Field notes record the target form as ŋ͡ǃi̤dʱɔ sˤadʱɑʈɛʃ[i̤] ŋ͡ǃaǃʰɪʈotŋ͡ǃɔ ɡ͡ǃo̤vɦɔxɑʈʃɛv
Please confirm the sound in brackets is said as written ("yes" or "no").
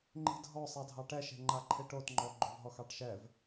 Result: no